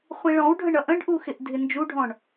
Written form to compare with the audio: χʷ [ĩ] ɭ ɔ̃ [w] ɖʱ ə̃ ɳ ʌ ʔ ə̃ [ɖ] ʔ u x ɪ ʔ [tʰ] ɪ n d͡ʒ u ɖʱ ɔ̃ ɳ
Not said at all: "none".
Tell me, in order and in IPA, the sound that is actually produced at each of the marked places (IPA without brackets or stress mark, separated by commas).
ĩ, w, ɖ, dʱ